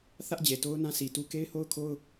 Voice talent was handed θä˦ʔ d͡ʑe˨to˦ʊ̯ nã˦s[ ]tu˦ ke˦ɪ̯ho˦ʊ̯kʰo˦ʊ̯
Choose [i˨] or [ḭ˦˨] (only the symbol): i˨